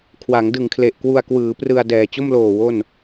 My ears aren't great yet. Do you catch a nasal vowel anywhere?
no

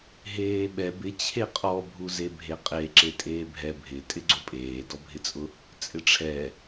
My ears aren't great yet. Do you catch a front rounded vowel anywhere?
no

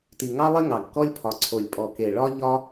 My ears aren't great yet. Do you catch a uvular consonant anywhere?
no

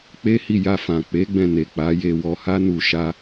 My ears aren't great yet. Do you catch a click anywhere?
no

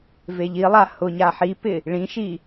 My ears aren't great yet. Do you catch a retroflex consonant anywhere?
yes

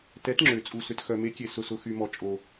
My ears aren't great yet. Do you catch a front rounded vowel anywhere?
yes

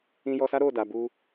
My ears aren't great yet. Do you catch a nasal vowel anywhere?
yes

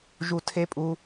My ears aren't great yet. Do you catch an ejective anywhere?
yes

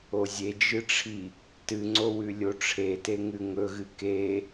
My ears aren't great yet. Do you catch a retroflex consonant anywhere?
yes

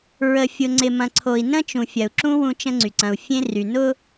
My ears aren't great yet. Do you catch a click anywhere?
yes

